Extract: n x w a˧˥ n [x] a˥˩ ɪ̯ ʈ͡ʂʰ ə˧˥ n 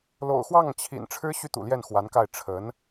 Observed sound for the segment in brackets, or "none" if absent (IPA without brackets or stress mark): k